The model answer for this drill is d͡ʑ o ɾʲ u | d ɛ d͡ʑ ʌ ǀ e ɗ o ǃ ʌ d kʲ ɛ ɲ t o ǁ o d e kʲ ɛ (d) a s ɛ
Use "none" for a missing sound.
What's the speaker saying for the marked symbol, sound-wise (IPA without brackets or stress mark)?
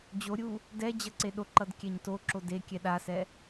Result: ɗ